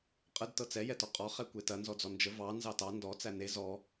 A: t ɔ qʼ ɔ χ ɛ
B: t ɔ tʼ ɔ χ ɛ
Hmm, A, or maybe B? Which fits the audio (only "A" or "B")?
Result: A